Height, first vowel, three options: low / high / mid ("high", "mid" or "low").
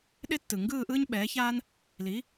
high